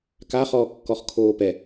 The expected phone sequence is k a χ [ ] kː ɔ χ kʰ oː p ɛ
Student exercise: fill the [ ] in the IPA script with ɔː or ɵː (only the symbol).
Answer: ɔː